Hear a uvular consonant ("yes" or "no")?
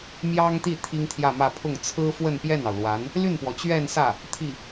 no